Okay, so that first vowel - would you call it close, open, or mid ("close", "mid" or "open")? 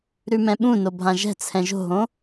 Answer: close